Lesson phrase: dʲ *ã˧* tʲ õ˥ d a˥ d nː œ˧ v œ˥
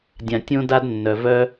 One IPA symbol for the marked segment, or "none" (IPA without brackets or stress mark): ã˧